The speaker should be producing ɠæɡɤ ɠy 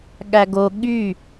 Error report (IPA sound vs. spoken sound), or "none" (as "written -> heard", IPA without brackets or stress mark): ɤ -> o